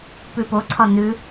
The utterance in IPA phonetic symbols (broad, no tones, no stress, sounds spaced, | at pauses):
p ʉ p o ǀʰ ɒ n̪ ʉ